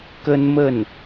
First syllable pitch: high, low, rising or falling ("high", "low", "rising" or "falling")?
high